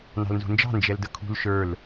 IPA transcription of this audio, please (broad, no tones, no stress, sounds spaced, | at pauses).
n ɑ̤ l n z ṳ n d͡ʒ ɑ̤ n d͡ʒ ɛ l d ə kʰ ṳ l ʃ ə˞ l